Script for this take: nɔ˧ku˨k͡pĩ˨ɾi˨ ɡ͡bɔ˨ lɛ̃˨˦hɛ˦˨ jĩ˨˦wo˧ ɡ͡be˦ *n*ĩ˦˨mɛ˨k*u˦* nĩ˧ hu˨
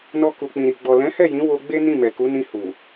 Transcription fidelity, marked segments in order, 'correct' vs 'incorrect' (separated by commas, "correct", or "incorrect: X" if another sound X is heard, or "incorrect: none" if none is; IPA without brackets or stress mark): correct, incorrect: u˨˦